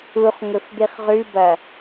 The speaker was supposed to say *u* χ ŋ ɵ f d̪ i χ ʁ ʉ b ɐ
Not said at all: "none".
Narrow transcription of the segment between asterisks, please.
u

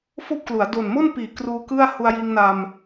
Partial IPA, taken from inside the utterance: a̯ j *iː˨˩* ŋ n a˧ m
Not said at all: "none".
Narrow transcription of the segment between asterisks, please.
iː˧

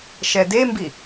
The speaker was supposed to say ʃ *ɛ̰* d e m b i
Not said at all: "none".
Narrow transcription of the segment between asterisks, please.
ɛ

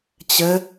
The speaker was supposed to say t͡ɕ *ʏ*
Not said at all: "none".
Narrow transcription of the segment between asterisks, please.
ə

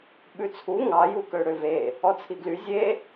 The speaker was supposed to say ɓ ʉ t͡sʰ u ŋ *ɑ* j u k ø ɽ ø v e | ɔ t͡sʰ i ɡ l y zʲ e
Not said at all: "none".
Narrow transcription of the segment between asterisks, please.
ɑ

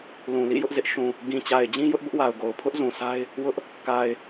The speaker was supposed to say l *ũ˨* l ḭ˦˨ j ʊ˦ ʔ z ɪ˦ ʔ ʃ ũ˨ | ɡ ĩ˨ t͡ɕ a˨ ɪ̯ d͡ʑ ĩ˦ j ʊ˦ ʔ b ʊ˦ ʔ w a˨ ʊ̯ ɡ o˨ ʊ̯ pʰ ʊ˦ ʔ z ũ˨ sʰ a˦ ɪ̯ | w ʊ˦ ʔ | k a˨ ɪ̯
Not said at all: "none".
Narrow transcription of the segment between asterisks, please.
ũ˨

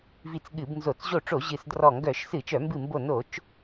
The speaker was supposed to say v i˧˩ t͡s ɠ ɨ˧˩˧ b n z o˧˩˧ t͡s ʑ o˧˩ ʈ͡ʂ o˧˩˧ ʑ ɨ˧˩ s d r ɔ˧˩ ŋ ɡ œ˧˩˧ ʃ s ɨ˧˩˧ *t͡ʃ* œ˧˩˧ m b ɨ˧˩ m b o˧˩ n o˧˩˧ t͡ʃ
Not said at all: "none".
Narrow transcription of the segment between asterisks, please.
t͡ʃ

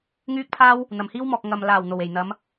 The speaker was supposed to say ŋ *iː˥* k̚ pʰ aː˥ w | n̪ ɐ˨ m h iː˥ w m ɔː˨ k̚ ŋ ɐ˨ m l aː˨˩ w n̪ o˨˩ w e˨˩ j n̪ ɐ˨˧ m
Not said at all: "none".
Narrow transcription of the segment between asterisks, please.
yː˥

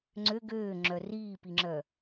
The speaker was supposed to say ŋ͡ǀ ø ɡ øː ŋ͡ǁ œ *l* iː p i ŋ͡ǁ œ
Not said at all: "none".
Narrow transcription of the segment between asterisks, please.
r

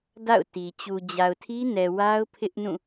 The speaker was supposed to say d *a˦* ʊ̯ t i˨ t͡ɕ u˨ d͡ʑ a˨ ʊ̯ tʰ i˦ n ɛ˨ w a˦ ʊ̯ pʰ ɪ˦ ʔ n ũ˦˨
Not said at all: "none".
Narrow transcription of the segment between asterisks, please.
a̰˦˨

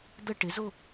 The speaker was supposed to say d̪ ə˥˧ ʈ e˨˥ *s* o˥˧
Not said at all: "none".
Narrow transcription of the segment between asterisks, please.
z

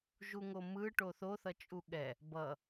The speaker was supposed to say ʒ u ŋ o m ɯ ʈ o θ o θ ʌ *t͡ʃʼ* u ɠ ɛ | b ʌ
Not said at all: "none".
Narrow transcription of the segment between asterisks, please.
t͡ʃʼ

